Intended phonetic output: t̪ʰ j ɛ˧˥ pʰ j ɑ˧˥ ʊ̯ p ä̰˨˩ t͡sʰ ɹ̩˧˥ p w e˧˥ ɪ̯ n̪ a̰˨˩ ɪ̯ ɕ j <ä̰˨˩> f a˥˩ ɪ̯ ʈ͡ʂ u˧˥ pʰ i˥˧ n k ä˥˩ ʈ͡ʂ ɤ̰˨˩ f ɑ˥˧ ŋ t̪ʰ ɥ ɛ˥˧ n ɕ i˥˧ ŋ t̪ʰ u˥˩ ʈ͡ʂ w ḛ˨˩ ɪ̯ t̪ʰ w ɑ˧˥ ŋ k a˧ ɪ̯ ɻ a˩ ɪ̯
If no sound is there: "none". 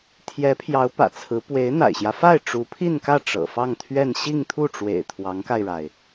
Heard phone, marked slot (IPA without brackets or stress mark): ä˦